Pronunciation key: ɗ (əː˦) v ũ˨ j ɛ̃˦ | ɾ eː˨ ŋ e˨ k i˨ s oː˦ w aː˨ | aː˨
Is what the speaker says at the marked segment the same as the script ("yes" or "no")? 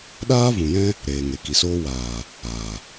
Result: no